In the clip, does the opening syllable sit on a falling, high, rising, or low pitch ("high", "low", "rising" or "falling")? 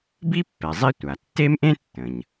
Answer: high